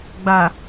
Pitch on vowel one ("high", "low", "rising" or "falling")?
low